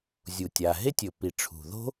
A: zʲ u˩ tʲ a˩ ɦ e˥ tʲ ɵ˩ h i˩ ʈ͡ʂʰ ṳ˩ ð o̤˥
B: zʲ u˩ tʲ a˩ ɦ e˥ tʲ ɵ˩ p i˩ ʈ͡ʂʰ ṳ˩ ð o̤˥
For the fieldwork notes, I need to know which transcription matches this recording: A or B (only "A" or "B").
B